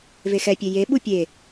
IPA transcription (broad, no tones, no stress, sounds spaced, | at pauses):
v e x ɛ pʲ e j e ɓ u pʲ e